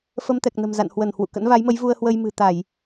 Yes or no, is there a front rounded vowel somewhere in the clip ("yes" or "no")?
no